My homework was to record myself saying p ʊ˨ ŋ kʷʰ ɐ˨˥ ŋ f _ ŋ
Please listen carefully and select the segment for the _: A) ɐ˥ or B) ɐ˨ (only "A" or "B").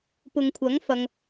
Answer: B